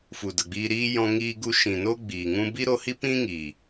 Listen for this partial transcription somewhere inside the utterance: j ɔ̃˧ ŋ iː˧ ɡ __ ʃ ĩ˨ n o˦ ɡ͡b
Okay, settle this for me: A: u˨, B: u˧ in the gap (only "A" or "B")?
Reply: B